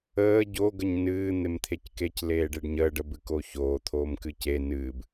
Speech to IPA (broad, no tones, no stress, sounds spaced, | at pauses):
əː ɟ o ɡ ə ɲ n ɨː n̪ e m t̪ʰ e c k e c l eː ɖ e ɖ ɲ əː ɖ ə b ɨ k o ç oː t̪ʰ oː m k ɨ c e n ɨː b